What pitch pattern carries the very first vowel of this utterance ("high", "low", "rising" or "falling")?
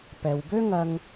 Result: low